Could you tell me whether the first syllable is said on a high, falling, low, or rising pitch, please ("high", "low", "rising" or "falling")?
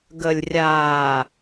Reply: low